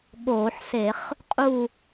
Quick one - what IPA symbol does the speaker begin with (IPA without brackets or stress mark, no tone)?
ɠ